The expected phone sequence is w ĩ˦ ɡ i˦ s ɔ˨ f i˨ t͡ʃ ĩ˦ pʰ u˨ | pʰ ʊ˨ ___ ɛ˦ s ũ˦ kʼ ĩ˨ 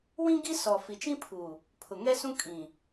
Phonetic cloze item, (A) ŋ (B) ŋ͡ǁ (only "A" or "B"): A